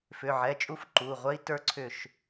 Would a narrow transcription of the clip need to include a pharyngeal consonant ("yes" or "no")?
yes